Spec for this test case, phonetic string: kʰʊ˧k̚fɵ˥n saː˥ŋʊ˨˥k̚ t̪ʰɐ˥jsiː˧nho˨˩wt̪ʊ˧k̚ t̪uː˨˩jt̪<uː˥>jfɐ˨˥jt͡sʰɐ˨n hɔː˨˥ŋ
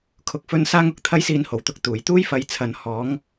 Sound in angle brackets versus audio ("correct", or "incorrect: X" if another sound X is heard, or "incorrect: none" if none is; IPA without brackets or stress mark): correct